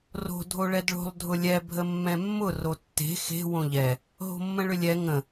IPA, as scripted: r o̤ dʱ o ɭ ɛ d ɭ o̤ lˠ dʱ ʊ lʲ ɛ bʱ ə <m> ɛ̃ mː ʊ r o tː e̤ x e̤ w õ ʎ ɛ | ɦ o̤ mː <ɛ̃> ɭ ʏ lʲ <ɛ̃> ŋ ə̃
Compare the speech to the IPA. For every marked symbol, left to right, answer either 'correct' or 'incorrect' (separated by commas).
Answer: incorrect, incorrect, incorrect